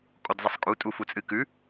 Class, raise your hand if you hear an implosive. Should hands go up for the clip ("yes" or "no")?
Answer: no